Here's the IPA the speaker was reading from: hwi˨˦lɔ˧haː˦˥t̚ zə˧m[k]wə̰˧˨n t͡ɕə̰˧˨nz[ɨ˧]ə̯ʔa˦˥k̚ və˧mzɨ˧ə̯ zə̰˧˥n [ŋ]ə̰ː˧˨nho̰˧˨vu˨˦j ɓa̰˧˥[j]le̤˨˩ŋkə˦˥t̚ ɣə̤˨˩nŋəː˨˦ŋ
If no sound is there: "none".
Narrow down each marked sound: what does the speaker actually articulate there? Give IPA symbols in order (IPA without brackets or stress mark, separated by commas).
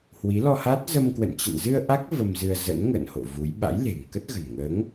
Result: k, ɨ˧, ŋ, j